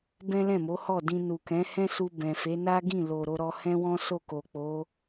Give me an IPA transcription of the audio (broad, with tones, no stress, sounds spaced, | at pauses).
b ɛ̃˦ l ɛ̃˦˨ m o˨˦ h ɔ˦˨ d ĩ˧ n u˨ k ɛ̃˨˦ h ɛ̃˦ s u˧ b ɛ̃˨ f e˨˦ n a˦ ɡ ĩ˦˨ l o˨ ɾ o˧ ɾ ɔ˧ h ɛ̃˦ w ɔ̃˦ s o˦˨ k o˨ k͡p o˨˦